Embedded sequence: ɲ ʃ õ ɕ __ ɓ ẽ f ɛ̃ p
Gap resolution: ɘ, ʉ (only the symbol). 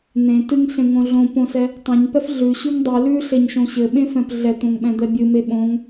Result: ɘ